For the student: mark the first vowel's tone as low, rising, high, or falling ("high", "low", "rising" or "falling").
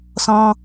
high